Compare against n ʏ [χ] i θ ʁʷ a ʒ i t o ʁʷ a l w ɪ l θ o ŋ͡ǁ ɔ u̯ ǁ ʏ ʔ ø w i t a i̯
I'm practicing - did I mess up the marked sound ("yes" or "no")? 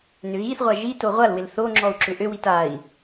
yes